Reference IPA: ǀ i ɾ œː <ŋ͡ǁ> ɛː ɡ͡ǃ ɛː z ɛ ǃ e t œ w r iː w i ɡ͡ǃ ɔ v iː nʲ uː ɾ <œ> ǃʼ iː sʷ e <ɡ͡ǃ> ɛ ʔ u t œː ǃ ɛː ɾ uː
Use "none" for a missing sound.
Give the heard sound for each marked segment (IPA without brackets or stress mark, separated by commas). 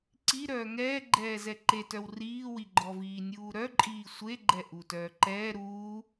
ŋ, œ, ɡ͡ǃ